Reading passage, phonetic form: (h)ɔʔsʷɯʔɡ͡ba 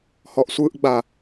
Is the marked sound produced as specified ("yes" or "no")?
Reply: yes